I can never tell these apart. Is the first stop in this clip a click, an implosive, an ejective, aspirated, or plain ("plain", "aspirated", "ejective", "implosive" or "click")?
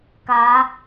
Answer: plain